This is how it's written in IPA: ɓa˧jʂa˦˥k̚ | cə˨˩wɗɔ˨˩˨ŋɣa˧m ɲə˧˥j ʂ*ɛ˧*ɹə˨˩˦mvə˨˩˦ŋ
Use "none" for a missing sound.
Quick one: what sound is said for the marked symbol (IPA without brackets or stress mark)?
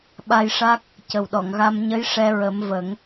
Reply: ɛ˧